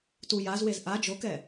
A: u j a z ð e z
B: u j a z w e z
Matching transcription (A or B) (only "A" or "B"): B